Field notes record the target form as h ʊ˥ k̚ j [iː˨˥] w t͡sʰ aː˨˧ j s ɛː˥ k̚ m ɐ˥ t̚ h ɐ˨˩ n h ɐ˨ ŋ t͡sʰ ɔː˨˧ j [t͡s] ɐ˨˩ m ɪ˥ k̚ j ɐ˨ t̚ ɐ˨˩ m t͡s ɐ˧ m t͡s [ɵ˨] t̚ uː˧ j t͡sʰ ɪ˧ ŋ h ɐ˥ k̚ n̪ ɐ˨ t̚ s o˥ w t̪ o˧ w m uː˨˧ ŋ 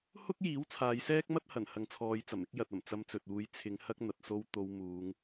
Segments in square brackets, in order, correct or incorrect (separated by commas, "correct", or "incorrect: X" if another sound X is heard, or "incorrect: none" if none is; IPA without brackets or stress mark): correct, correct, correct